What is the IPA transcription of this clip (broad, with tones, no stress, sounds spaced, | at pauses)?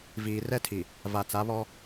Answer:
v iː˨ r ɛ˦ tʰ i˨ | v a˨ t͡s a˨˦ β ɔ˦